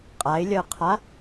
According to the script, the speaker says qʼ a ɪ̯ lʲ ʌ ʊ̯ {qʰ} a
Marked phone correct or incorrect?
correct